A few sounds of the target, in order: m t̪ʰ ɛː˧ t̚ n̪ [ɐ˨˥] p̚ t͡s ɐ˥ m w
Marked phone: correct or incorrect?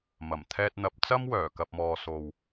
correct